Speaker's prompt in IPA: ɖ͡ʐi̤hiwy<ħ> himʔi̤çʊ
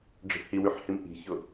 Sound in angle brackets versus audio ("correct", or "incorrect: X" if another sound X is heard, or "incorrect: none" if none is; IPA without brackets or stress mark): correct